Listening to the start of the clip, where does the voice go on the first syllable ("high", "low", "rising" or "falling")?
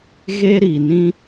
high